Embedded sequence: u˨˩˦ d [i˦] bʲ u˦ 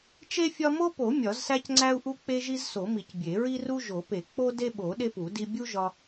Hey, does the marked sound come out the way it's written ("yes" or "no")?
yes